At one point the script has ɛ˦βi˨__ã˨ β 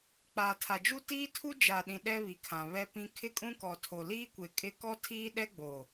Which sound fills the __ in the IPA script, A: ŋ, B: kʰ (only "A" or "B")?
B